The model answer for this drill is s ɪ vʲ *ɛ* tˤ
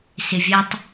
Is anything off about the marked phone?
no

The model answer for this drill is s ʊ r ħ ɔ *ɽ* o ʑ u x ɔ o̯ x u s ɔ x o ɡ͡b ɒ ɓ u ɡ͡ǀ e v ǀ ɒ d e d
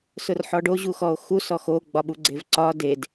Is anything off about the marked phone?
yes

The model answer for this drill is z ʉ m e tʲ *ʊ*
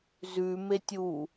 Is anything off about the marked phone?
yes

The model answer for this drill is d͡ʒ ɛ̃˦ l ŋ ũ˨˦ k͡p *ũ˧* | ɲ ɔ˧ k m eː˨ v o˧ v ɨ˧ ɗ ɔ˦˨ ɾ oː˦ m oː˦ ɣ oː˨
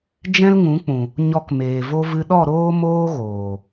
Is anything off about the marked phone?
yes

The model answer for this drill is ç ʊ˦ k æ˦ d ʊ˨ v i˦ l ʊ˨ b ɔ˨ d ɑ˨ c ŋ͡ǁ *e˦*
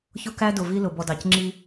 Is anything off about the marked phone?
yes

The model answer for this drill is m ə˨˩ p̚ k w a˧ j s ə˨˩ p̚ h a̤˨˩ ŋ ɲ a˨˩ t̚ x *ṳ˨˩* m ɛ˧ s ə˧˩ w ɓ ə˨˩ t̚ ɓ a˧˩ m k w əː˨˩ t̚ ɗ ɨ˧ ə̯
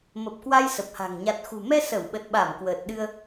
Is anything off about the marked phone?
no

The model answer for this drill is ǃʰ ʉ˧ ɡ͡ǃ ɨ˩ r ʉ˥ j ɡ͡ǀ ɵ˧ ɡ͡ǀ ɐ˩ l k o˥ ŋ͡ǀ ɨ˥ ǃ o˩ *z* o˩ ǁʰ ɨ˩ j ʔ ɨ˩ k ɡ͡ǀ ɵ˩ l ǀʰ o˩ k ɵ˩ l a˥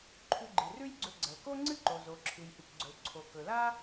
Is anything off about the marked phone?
no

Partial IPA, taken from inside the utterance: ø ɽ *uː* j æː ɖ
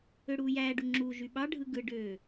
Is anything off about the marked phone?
no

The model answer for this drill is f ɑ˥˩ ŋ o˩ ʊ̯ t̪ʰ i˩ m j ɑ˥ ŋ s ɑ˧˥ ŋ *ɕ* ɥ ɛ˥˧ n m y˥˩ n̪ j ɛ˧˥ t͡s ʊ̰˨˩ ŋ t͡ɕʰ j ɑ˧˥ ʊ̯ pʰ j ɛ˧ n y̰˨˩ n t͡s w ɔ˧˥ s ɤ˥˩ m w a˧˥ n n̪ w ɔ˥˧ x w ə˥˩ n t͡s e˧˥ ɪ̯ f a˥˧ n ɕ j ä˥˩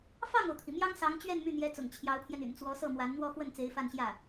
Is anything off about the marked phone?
yes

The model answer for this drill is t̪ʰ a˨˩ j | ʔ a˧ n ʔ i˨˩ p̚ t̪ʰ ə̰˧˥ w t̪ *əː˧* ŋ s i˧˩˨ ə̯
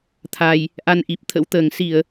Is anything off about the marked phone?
yes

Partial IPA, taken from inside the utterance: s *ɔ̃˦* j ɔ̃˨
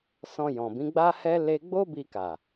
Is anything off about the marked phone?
yes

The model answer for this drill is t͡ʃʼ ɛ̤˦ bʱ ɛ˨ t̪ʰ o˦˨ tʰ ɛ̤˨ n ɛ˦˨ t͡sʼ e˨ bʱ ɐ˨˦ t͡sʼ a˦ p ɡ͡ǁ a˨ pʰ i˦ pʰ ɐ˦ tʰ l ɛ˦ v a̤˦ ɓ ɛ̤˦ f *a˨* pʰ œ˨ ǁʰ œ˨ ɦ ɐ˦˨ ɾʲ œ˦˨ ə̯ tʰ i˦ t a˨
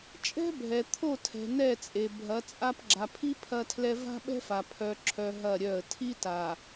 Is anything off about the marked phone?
no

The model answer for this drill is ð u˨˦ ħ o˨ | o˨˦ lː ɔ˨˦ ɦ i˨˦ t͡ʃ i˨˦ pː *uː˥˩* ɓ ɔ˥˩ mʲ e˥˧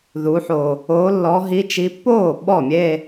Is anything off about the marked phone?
yes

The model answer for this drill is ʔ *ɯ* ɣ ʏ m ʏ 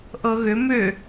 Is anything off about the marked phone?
yes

